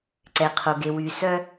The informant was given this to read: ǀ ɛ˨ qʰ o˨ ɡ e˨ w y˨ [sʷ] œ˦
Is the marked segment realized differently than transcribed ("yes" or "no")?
yes